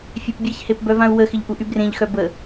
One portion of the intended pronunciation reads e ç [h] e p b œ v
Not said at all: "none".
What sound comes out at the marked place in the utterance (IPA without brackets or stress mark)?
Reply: h